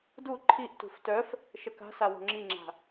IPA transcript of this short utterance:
du ǃʰiʔtṳf tœf | ʃəka̤sa wo̤ŋ͡ǁiŋ͡ǁa̤

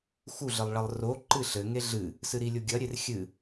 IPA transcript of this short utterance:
xuɮɘlˠɭɐlˠ ro ǃɨɬɘ ŋeɮɨ | sɨɾilʲoɡʲɐ ɾʲerxʲɨ

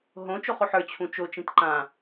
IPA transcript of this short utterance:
ɦõ t͡ʃoχoħə˞ t͡ɕʰũt͡ʃo t͡ʃĩtǃã

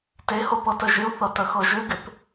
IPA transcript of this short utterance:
teho pɤtəʒɪu̯θɤ təxɤʒʏɡɪp

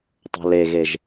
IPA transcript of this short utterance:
tˤo̤leɣeʒ

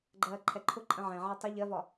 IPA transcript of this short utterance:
ɡ͡ǃɜːǃʰɛǃʰʊǃʼə̃ ʕɛ̃ʕɛ tˤə ʎɜvɒ

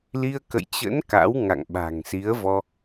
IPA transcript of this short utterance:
li˧ə̯ kə̰˧˨jt͡ɕə̰˧˥n ka̰˧˥wŋa̰˧˨ŋ ɓa̤˨˩ŋsi˨˦ə̯vɔ˧

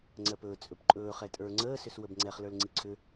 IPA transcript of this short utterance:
ŋ͡ǀɜpɵː t͡sʼɵpǃʼɵː χɛtʼə˞ ŋ͡ǀəː sʏswəbŋ͡ǀɛχ lə˞lŋ͡ǀiǀʰʏ

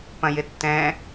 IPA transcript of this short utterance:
pɐ̃jɪtːɛ̃

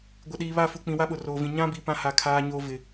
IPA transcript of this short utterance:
ɡʷɪ˨ɗiː˨βa˦˨ fu˨k͡pĩ˨ wa˦ɓʊ˨roː˨vĩ˨ ɲã˦bi˨ pã˦ha˨kʰaː˦ɲoː˦ vɪ˨

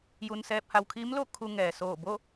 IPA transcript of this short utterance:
ju˧nsɛː˧p̚ha˧w kʰiː˧˥mlo˥˨ kʰu˧ ŋɛː˩soː˧˩ bo˥˨

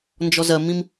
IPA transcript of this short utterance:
nd͡ʒɔzɜmĩm

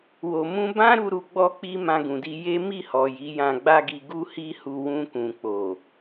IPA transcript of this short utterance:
wo˨mũ˧bã˦ ɾu˧ ɾu˧ɡ͡bɔ˦k͡pi˦ mã˧ɡũ˨di˧ je˦ mi˦˨hɔ˨ ji˨˦jã˧ɡ͡ba˦ɡi˧ ɡu˦hi˦hu˧ wũ˧kũ˨k͡po˨

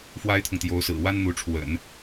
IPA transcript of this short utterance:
fwa˥ɪ̯t̪ʰʊ˨ŋt̪jo˧˥ʊ̯sɹ̩˨˩ wa˥nn̪u˧˥ʈ͡ʂʰwə̰˨˩˦n

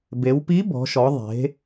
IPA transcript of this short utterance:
be˩˧wpi˧˥ bɔ̤˩˧ʃɔ˩˧ ðˤe̤˩˧

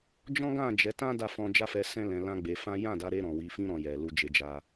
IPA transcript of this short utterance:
d͡ʒɔ̃˦ɡã˦˨d͡ʒɛ˨˦tã˦ da˦˨fɔ̃˧ d͡ʒa˦fɛ˧sɛ̃˦ lɛ̃˧lã˦ɡ͡be˧fã˦ jã˦˨da˨˦ɾe˧ ɾɔ̃˨wi˨˦ fĩ˧ɾɔ̃˨ jɛ˨ lu˧d͡ʒe˧d͡ʒa˧

